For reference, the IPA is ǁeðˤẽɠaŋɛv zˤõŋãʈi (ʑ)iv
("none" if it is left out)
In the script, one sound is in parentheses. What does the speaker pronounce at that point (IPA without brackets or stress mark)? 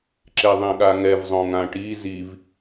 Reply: z